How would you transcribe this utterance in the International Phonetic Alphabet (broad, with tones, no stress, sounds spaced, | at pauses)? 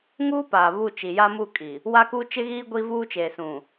ŋ uː˦ p aː˨ β u˦˨ t͡ʃ i˨ j a˦ m u˦˨ kʼ i˨ | w a˦ k u˦ t͡ʃ ɪ˦ ɣ iː˦ ɡʷ i˦ v uː˦ t͡ʃ eː˨ s ũ˨